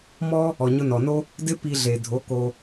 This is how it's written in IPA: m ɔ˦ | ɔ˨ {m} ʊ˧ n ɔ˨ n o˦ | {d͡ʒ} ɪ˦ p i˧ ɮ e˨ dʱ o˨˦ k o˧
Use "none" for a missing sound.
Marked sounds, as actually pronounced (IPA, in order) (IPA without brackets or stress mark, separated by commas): ɲ, d